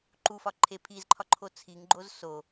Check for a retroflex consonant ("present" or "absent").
absent